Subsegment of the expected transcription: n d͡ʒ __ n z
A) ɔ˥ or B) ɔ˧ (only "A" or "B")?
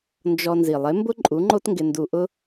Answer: B